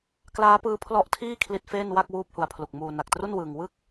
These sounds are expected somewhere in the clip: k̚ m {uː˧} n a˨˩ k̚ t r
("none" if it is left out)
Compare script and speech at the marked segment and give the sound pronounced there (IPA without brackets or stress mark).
uː˧